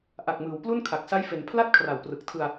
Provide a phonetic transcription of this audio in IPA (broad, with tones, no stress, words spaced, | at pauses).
ʔa˨˩k̚mɯː˩˦w plu˥˩nkʰa˨˩k̚ sa˦˥jfe˩˦n pʰla˥˩t̚ kʰra˨˩wprɯ˨˩k̚tʰɯ˧a̯